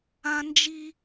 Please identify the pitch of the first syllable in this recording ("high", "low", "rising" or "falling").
high